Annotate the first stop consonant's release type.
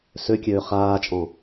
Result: plain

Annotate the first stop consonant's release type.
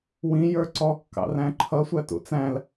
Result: click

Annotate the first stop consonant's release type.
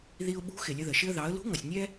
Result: implosive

